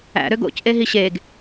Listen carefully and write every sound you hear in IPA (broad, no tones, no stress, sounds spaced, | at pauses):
æ̰ ɾ ø ɡ o̰ c ʔ e ɦ i ɕ e ɡ